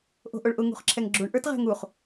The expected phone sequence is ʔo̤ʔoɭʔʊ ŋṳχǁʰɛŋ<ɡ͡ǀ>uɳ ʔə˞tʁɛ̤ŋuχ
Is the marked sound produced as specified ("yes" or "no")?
no